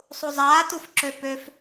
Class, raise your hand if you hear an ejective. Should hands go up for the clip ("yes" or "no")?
no